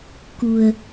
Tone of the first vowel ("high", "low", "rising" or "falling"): low